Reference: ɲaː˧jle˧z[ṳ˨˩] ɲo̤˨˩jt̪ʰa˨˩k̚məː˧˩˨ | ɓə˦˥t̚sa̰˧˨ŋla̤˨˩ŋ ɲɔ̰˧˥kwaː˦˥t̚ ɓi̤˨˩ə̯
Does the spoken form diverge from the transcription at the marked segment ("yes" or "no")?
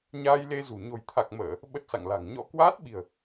no